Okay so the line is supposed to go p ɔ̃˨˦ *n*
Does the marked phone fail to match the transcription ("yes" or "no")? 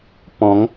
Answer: yes